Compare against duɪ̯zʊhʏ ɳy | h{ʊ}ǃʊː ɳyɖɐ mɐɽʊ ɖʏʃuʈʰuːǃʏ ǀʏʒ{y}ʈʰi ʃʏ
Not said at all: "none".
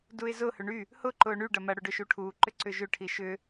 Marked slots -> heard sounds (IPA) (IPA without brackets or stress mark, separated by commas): ʊ, ʏ